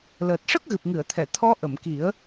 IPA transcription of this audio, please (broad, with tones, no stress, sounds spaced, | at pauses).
l əː˨˩ t̚ ʂ ə˦˥ k̚ ɣ ɨ˨˩ p̚ ŋ ɨ˨˩˨ ə̯ t̪ʰ ɛ˨˩˨ t̪ʰ ɔ˧˥ ʔ ə˨˩˨ m k i˨˩˦ ə̯